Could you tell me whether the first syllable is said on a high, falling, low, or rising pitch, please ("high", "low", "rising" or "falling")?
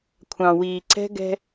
low